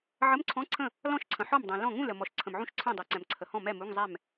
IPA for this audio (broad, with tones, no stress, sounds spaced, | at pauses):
ʕ ə˧˥˧ m ǀʰ ɔ̃˧˥˧ ǀʰ ə̃˥˩ | l ɔ̃˥˩ ʃ ǀʰ ə̃˩ ħ ɔ˥˩ m dˤ ɛ̃˩ l ɔ̃˥˩ ŋ ũ˥˩ l ə˩ m ɔ˩ ʃ ǀʰ ə̃˩ m ʕ ũ˥˩ ʃ ǀʰ ɛ̃˥˩ dˤ ɛ˩ ǀ ɛ̃˩ m ǀʰ ə˩ h ɔ̃˥˩ m ɛ˥˩ m u˧˥˧ ŋ zˤ ɛ˥˩ m